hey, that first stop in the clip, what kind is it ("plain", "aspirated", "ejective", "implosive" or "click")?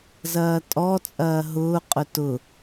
ejective